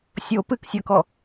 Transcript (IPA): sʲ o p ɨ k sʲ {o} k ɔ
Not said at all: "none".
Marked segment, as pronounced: ɤ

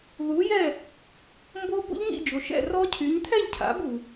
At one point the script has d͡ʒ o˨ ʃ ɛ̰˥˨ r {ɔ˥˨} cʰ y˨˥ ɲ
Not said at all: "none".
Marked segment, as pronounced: ɔ˦˥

